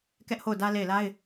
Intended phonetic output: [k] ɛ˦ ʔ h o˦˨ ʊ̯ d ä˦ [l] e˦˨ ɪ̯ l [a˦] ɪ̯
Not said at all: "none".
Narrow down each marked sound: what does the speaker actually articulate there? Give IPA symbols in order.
k, l, a˦

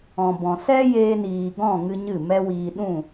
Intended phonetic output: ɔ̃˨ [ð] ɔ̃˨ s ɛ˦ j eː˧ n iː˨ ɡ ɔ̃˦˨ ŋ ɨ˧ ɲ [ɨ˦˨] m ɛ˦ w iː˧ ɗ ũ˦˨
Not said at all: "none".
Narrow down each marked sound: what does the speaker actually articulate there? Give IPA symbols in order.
b, ɨ˦˨

